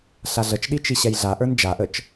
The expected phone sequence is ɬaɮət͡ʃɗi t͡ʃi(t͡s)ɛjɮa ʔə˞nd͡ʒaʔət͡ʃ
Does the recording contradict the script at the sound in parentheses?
yes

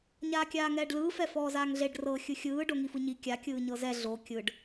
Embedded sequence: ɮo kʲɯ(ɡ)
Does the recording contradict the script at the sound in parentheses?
yes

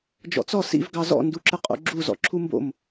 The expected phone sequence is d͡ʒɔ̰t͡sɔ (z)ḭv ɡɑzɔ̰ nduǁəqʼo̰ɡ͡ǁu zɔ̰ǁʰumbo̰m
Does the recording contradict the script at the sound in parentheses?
yes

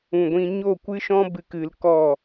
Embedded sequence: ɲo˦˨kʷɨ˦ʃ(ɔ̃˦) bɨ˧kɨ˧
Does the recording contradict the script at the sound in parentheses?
no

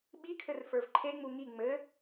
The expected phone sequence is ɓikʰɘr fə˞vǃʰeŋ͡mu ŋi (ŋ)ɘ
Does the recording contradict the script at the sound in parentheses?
yes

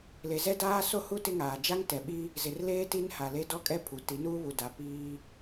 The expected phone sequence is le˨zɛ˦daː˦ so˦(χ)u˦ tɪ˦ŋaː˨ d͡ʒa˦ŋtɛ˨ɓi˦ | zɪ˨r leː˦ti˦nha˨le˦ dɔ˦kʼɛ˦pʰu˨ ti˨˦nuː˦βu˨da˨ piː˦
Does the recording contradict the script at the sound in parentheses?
yes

